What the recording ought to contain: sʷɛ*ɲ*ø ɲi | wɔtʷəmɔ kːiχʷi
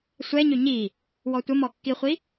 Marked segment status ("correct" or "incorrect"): correct